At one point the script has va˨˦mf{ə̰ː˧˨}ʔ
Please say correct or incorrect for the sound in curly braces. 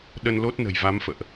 correct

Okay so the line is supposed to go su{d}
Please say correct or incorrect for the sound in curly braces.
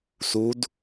correct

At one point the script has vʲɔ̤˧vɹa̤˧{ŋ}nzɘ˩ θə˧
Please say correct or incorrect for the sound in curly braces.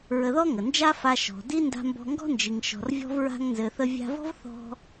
correct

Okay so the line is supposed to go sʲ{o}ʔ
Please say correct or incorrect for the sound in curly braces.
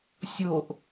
correct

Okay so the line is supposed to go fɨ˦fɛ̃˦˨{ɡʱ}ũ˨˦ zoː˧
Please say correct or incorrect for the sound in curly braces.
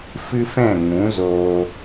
incorrect: ŋ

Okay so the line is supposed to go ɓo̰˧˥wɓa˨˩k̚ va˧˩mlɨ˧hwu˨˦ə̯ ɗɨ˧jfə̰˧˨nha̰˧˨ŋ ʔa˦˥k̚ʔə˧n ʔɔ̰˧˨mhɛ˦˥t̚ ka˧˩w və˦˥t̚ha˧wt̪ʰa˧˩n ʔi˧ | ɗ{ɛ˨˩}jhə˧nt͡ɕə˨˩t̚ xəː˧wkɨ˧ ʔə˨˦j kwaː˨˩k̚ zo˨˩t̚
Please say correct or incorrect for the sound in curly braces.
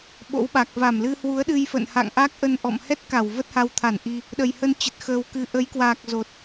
incorrect: ə˨˩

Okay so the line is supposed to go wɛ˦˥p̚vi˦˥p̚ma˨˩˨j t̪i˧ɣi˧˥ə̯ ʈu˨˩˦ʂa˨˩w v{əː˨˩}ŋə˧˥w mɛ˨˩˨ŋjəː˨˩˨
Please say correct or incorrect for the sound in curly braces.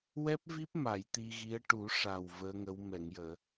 incorrect: əː˧˥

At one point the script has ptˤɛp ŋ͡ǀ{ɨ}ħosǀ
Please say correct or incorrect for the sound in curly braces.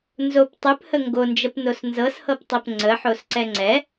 incorrect: ə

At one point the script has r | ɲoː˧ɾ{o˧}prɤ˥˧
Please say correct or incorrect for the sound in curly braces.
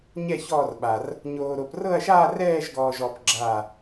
correct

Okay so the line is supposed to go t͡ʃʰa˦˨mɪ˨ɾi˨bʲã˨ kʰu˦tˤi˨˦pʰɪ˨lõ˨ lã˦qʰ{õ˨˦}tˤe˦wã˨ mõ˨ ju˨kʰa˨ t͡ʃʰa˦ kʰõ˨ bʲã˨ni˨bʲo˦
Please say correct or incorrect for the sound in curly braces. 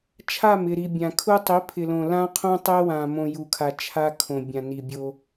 incorrect: õ˦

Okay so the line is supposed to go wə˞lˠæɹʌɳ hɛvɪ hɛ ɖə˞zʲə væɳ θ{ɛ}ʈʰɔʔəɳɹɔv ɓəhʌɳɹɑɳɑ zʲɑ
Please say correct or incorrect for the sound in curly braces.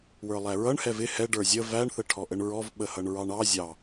incorrect: ə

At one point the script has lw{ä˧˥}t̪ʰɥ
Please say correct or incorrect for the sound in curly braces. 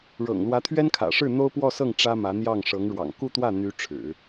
correct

